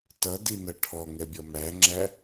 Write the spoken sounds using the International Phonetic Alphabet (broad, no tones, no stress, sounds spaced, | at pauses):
t ʌ d i n ʌ ʈʰ ɔ ŋ ɛ bʲ ʌ m æ ŋ͡ǁ æ